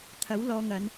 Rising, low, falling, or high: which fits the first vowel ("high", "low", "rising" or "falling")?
rising